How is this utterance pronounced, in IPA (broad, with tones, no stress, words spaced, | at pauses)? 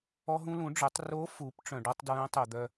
ɔ˧ɦũ˧lũ˩˧ɖ͡ʐœ˩˧tˤ ro˧˥fu˩˧p ʈ͡ʂœ̃˩ɖɔ˧tˤ dɹœ̃˧˥tˤo˩d̪œ˧